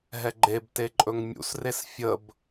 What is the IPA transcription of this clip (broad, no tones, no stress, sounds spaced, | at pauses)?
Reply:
ɦ ɛ ɡ͡ǃ e b t e ǃʼ ɵ ŋ mʲ ṵ s r e s fʲ ə b